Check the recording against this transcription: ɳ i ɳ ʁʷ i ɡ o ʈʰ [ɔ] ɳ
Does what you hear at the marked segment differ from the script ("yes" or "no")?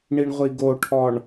no